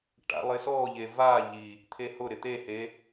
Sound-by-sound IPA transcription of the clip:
ʈ a̰ lˠ ɪ s ɔ ʎ e v a ʎ i | t̪ʰ e h ʊ ɾ ɪ t̪ e h e

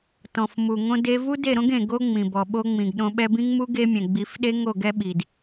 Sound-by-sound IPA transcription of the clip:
t ɔ̃˨ f m u˨ ŋ õ˦ d e˦ v u˦ d e˦˨ ɾ õ˦ ɡ ẽ˨ ɡ o˦ ŋ͡m ĩ˨ b ɔ˨ ɓ o˧ ŋ͡m ĩ˨ ɡ ɗ õ˧ ɓ ɛ˧ b ĩ˦ ŋ m u˦ ɡ e˦ mʲ ɛ̃˨ ɡ͡b i˨˦ f ɗ e˦ ŋ o˦˨ ɡ ɛ˦ ɓ i˨ d

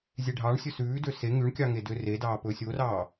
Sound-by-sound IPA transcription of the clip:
zʲ e ɖʱ ɑː ɳ sʲ ɵ s ʉː d ø s e ŋ y ɳ kʲ ɑ ŋ e d ø r e d ɑː p ɵː sʲ o r ɑː

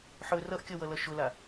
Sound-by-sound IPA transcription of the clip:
ħ ɵ r ʌ ʔ kʲ ɔ w ʌ l ʌ ʃ ʊ l a

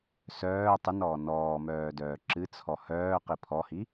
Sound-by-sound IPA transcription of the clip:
s œː tˤ ɨ n ɔː n ɔː m œː d œː ǁ ɨ t͡sʰ ɔ h œː q i pʰ ɔ h i

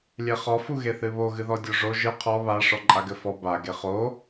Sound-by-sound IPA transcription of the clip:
lʲ e χ ɔ f u ɣ e θ ɨ β o ɣ ɨ ð ɔ dʲ o ʐ o ʒ ɨ qʰ ɔ β a ʂ ɔ ǃʼ a ɡ ɘ f ɔ b a ɡ e χ o

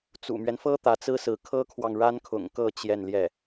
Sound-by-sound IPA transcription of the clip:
t͡s ṵ˨˩ m ɥ ɛ˦ n f ɤ˥ t̪ ä˧˥ t͡s ɹ̩˥ s ɹ̩˧˥ kʰ ɤ˥ kʰ w ɑ˨ ŋ ɻ a˥ n kʰ ʊ̰˨˩ ŋ k ɤ˥˧ t͡ɕ j ɛ˥˧ n l j ɛ˥˩

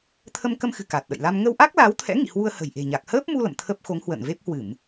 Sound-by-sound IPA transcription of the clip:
t̪ʰ ə˧ m k ə˧ m x ɨ̤˨˩ k a˨˩ t̚ ɗ ə̰˧˨ j l a˧ m ŋ ə˧ w ʔ a˦˥ k̚ l aː˨˦ w t̪ʰ ɛ̰˧˥ ŋ ḭ˧˨ h w u˧ ə̯ h ə̤˨˩ j ʔ e̤˨˩ ɲ a˨˩ k̚ h əː˦˥ p̚ m u˧ l ə̰˧˨ m t̪ʰ ə˦˥ p̚ x o˨˦ ŋ h w ə̰ː˧˨ n v e˦˥ p̚ h w ɨ˧˩˨ m

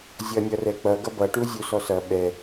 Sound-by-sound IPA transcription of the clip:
zʲ ʌ nʲ ʌ r ɛ k͡p ʌ ɡ ʌ b ʌ ʈ u zʲ u s ɔ s ʌ ɓ ɛ

